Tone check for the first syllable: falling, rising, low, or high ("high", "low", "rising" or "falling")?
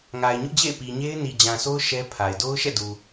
low